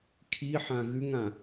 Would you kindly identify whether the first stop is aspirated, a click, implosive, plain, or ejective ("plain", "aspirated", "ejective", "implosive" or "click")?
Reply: aspirated